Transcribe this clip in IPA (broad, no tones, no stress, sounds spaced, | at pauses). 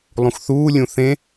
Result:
lˠ ũ x θ uː lʲ ũ θ ẽ